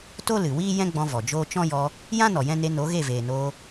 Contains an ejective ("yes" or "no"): no